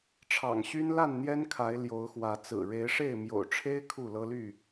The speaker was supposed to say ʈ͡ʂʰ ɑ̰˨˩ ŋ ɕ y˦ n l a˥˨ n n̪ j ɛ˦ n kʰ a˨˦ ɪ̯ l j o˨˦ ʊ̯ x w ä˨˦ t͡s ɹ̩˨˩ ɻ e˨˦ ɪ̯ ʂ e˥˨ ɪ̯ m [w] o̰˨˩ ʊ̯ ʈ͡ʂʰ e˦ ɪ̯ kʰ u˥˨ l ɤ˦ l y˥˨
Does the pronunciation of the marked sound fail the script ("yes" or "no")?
yes